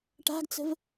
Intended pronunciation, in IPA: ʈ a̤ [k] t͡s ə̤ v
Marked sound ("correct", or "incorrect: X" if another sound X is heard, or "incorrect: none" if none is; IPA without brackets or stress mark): incorrect: ɡ